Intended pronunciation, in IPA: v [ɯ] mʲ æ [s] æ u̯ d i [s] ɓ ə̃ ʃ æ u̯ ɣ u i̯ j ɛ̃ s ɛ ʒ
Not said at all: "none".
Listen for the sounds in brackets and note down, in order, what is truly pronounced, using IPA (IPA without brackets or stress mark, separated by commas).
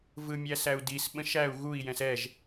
ɯ, s, s